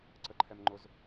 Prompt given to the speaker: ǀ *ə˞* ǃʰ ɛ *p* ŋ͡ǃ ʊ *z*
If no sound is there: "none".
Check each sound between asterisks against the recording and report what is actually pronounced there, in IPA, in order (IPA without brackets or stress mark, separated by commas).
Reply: ə, m, z